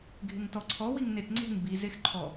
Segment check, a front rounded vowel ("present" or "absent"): absent